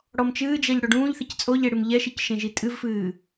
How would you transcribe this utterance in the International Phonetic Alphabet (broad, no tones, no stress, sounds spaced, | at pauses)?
ɽ ɔ m t͡ʃ ɨː d͡ʒ ɛ ʎ ɽ o ɖ ũː ʎ θ i c t͡sʼ o ʎ e ɽ ɨ m ʎ ɛ ʃ i c ʃ ẽ ʒ i tʼ ɨ v f ɨː